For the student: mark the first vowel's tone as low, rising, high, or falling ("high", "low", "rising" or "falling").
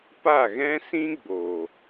falling